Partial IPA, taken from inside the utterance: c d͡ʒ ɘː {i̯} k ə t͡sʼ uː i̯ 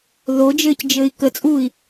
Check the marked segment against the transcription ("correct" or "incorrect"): correct